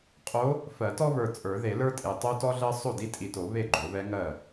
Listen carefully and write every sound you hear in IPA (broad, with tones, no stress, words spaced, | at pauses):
qʼo˧˥ | fɜ˨˩˦tɔ˥βə˞˨ t͡sʼə˞˨˩˦ðe˨˩˦ lə˞˥tʼe˨ tˤo˥tɔ˥ɮɜ˥ sˤo˥˩di˥tʼi˨to˨˩˦ βe˥˩ɡ͡ǃo˨˩˦ βɛ˧˥ ŋɜ˥˩